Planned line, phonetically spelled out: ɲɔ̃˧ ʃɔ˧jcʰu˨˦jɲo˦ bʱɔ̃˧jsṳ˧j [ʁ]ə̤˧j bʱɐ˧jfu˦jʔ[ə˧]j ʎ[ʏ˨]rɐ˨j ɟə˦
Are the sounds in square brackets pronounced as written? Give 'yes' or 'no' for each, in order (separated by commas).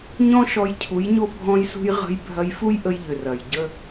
yes, yes, yes